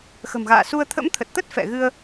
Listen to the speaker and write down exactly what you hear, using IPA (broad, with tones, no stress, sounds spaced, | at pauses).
x ə̤˨˩ m ɣ a̰ː˧˨ s u˧ ə̯ t̪ʰ ə̰˧˥ m t̪ʰ ə˨˩ t̚ t̪ ə˦˥ t̚ f ɛ̰˧˨ ɣ ɨ˧ ə̯